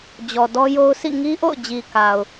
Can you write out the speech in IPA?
d͡ʑ ɔ˨ d ɔ˦ j o˦ ʊ̯ sʰ ḭ˦˨ ŋ i˦ ʔ o̰˦˨ ʊ̯ d͡ʑ i˨ k a˨ ʊ̯

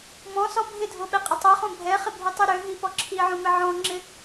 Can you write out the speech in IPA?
m ɔ̃ s ɔ bʱ ɪ dʱ o ɓ ɛ qʼ ə tˤ o χ õ bʱ ɛ χ ɪ bʱ ʉ tˤ ʉ ɾ ø ɦ i p ɔ ǁʰ i ʕ õ m ɪ ʕ ɔ̃ ŋ͡ǁ ɪ

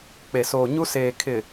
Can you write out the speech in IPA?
k͡p e˨ s oː˨ ɲ u˦ s eː˨ kʰ ɪ˨

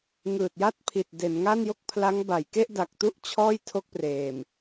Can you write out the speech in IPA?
ŋ ɯː˨˩ t̚ j a˥˩ t̚ pʰ i˨˩ t̚ d e˩˦ n ŋ a˥˩ n j o˥˩ k̚ pʰ l a˦˥ ŋ b a˩˦ j k e˥˩ ʔ d a˨˩ k̚ t u˥˩ ʔ t͡ɕʰ ɔː˥˩ j tʰ o˥˩ k̚ p r eː˨˩ m

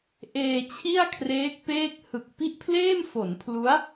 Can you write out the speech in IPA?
ʔ eː˧ t͡ɕʰ i˥˩ a̯ kʰ r eː˦˥ k̚ p eː˥˩ k̚ h ɯ˨˩ k̚ p i˥˩ ʔ pʰ l eː˥˩ m f o˩˦ n pʰ l u˦˥ a̯

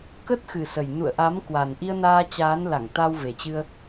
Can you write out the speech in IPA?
k ə˦˥ t̚ x ɨ˨˩ s ə˨˩ j n ṵ˧˨ ə̯ ʔ a˨˦ m k w a˨˩ n ʔ i˧ ə̯ n aː˧ t͡ɕ aː˨˦ n l a˧˩ ŋ t̪ a˧ w v e˨˩ t͡ɕ ɨ˧ ə̯

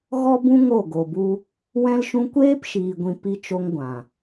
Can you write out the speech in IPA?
ɣ ɔ˦ b ũ˦ ŋ o˦˨ ɡ o˨ b u˦ | w ɛ̃˦ l ʃ ũ˧ kʷ eː˦ p ʃ iː˨ ɡʷ ĩ˨ p i˧ t͡ʃ o˧ ŋ ɡʷ ã˨

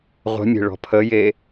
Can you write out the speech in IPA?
ʁʷ ə̤ mʲ e̤ ɭ ɔ̤ pʰ ə j e

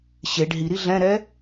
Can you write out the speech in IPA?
ɕ e ɖ ɦ i ɾ i ɮ ɛ̃ ɾ ɛ

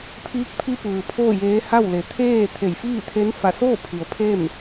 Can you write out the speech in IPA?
pʰ iː˧˥ k̚ pʰ i˧ p ɯː˩ pʰ oː˥˨ j eː˧˥ h a˥˨ w l e˩˧ t̪ʰ eː˥˨ t̪ʰ e˧˩ j f iː˥˨ t̪ʰ e˧˥ n f a˧˩ s oː˥˨ pʰ i˩˧ ə̯ pʰ e˥˨ m

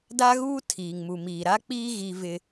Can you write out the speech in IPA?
d a˦ ɣ uː˦ tʰ iː˨ ŋ m u˨ m iː˨ ɾ a˦ k͡p iː˦ ɣ i˦ v ɪ˦

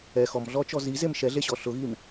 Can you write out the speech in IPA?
ɛ x ɔ m ɮ ɔ t͡ʃ ɔ z i z e m ʃ ɛ ɮ e ɕ ɔ ɬ ʊ ɣ i m

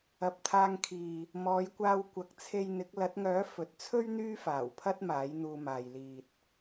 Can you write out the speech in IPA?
ɐ˨ p̚ t̪ʰ aː˧ ŋ kʰ iː˨ | m ɔː˨˧ j kʷ aː˧ w kʷ ɐ˨ k̚ t͡sʰ e˧ j n̪ ɪ˨˥ k̚ l ɐ˨˥ t̚ ŋ œː˨˥ f ɵ˨˥ t̚ t͡sʰ ɵ˥ ɥ n̪ yː˥ f aː˨˩ w pʰ ɐ˥ t̚ m aː˨˥ j n̪ uː˧ m aː˨ j l iː˨ t̚

